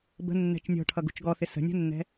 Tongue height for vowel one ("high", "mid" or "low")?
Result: mid